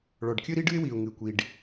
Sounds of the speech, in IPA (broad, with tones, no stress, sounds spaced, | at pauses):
ɭ ɔ˩ ɖ kʲ ɨ˥ ɾ i˥ ɖ ɨ˥ ɪ̯ w i˩ ʊ̯ ŋ ɨ˩ kʷ i˩ ɖ